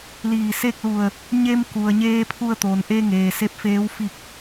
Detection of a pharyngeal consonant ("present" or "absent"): absent